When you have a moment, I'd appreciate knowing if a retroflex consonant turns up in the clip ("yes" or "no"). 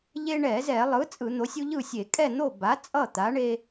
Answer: yes